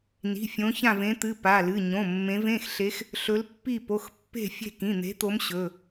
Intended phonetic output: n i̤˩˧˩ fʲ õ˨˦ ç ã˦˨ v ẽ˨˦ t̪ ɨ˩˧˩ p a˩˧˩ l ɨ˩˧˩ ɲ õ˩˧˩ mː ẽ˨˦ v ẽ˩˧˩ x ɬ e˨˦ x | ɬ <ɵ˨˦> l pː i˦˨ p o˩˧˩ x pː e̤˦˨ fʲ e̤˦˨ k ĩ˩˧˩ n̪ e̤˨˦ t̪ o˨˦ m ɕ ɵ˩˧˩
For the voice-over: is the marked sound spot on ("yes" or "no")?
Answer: yes